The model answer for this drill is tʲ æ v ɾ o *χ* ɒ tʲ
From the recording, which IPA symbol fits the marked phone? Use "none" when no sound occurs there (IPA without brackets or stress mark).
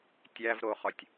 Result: χ